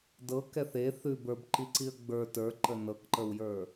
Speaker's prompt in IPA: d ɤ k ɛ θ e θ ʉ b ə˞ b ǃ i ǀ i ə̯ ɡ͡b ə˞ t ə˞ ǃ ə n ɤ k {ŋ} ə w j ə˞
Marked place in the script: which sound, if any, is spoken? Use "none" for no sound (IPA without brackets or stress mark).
ǃ